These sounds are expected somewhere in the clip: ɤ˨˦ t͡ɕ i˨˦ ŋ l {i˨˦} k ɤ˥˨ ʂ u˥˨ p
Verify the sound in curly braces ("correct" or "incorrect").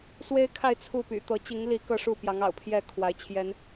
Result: correct